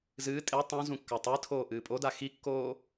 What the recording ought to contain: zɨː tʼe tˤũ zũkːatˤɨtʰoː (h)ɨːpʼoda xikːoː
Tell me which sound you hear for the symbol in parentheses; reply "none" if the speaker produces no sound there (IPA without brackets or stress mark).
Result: ʔ